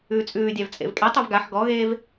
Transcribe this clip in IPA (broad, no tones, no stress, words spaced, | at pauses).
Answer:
ʉːt͡sʼʉːdʲav t͡sʼḛvkʼetˤʉv ɡaħ ɡɔɣeːv